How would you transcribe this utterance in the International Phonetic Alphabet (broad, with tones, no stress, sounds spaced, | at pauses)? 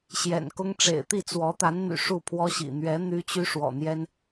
ɕ j ɛ̰˨˩ n k ʊ˥ ŋ ʈ͡ʂ ḛ˨˩ ɪ̯ t̪ i˥˩ t͡s w ɔ˧˥ t̪ a˧˥ n n̪ y̰˨˩ ʂ u˥˩ pʰ w ɔ˥ ɕ ḭ˨˩ n̪ ɥ ɛ˧˥ n̪ y˥ t͡ɕ y˥ ʂ w ɔ̰˨˩ n̪ j ɛ˥ n